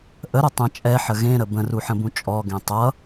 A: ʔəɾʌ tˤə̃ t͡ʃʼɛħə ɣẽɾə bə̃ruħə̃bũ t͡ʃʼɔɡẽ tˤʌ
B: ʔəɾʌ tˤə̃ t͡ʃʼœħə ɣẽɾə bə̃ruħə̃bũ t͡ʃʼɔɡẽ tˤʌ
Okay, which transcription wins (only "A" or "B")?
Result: A